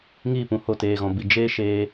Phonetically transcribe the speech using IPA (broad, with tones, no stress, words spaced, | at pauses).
ŋiː˦˨pũ˨ ho˧teː˨ɣɔ̃˨bi˨ d͡ʒeː˦ʃeː˧